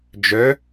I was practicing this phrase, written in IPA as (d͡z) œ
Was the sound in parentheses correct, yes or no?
no